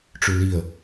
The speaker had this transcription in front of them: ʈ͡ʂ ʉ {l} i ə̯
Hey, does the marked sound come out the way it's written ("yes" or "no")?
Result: yes